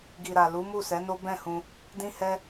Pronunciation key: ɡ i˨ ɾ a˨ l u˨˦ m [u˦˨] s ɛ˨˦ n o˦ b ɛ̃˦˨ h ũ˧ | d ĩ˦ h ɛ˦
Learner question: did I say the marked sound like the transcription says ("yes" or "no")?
yes